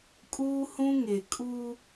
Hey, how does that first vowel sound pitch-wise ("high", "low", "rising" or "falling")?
high